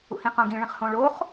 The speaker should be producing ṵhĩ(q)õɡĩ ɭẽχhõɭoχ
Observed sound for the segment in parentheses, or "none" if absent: q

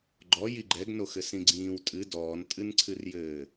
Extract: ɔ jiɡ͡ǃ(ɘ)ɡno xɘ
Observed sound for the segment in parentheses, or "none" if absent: ɛ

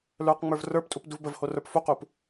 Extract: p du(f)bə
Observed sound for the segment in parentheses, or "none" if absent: v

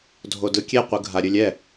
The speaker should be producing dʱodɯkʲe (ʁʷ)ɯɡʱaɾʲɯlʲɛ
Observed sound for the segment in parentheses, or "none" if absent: qʷ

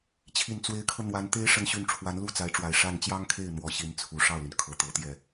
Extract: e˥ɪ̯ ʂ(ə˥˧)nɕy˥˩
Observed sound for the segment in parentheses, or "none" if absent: ə˥˧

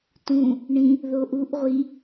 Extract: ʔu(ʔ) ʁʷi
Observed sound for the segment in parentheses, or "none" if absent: ʔ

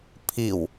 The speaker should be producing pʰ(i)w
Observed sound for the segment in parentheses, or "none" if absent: i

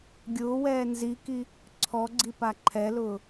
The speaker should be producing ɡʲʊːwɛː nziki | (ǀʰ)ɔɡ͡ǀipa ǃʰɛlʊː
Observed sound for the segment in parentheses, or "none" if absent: ǀʰ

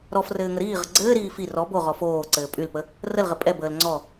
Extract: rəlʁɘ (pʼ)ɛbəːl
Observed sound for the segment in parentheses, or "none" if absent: pʼ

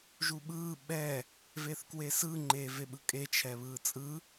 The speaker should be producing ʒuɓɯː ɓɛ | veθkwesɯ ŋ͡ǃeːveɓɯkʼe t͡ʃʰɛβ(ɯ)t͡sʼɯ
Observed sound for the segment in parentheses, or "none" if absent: ɯː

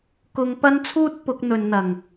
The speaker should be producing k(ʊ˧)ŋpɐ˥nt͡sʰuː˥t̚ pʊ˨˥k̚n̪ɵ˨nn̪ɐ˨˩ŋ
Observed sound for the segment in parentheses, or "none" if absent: ʊ˧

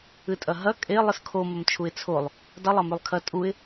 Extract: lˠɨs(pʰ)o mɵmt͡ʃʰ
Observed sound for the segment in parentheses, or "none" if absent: kʰ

